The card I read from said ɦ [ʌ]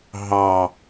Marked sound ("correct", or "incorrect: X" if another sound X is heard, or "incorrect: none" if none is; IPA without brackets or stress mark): incorrect: ɑ